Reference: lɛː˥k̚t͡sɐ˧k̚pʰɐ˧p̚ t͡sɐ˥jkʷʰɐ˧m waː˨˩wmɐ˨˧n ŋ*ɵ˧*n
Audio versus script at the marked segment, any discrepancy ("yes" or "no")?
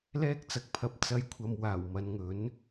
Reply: yes